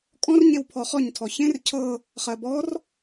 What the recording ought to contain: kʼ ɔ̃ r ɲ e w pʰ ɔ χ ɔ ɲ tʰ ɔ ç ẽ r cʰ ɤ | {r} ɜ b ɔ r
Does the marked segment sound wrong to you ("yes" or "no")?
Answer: yes